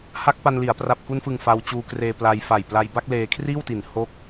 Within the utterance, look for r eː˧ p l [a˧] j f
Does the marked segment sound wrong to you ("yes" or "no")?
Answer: no